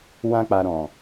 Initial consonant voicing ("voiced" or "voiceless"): voiced